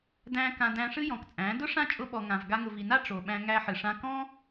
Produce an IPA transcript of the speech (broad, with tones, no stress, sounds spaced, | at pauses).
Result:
d æ̃˧ k ã˧ d æ̃˧ ʂ ɨ˦ j ɔ̃˨ k t͡sʼ æ̃˨˦ d ʊ˦ ʂ ã˦ t͡ʃʼ ʊ˧ ɓ ɔ˨ ŋ ã˨ v ɡ a˧ ŋ ʊ˨ v i˨ n a˦ ʈ͡ʂ o˨ ɓ æ̃˧ ŋ æ˧ ħ ɨ˨ ʂ ã˧ k ɔ̃˦